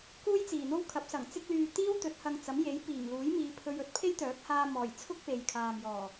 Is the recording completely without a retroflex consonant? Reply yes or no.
yes